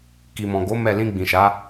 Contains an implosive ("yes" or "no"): no